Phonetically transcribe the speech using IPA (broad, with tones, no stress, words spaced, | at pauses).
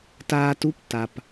taː˧tu˧˥p ta˩p